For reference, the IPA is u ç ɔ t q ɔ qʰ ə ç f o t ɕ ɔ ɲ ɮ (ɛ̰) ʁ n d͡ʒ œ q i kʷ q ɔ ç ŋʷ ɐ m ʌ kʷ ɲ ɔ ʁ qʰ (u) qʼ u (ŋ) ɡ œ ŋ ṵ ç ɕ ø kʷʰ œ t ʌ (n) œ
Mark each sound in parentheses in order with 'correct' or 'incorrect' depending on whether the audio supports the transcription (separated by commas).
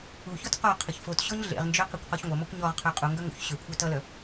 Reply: incorrect, incorrect, correct, incorrect